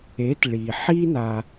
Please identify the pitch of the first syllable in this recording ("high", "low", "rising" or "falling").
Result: rising